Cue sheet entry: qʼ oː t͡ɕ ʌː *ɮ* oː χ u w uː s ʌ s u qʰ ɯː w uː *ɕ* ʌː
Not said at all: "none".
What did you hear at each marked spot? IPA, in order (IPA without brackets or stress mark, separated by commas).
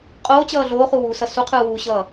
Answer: ɮ, ɕ